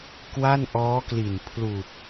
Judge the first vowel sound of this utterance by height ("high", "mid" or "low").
low